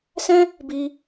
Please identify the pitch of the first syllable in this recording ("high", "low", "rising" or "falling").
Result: high